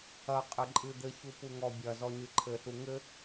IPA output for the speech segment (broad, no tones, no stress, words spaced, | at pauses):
ɐqʼɘ ǃʼɨd̪ɘçu puŋɔbʲɐzɔ ɲɨǃʰɘɬu ŋɘ